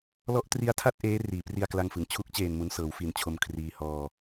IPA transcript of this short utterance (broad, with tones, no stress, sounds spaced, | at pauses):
l ɔ˦˥ ʔ t r i˦˥ a̯ tʰ a˥˩ t̚ ʔ eː˦˥ r iː˩˦ p r i˧ a̯ k l a˧ ŋ f ɯ˩˦ ŋ t͡ɕʰ u˦˥ k̚ t͡ɕ eː˨˩ n m u˦˥ n s ɤː˩˦ w f i˨˩ n t͡ɕʰ o˧ m kʰ r iː˧ h ɔː˧